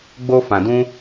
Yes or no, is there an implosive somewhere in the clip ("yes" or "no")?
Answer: no